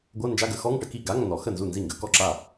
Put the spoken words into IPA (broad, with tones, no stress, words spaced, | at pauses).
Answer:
ɡʷɤ˧˥˧nd͡ʒa˧˥˧ɡə˨˩˦ xɔ˧˥˧ŋʈə˧˥˧ki˥˩ ɡa˧˥˧ŋ nɔ˨˩˦ xə˥˩nzu˥˩ nzi˥˩ŋɡə˨˩˦ kɔ˥˩ǁa˥˩